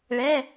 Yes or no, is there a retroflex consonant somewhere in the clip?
yes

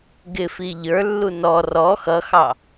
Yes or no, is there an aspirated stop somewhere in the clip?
no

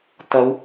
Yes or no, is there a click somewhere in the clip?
no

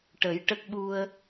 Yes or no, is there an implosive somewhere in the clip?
yes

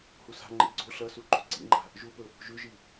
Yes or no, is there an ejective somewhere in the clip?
no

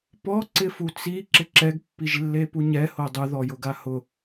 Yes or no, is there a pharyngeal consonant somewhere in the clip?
no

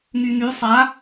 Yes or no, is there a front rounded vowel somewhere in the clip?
yes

